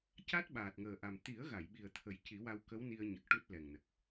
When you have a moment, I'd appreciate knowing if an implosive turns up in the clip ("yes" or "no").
yes